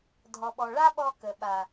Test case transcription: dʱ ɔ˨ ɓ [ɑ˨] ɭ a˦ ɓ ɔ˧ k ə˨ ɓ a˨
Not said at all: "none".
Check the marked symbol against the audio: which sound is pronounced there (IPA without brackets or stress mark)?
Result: ɔ˨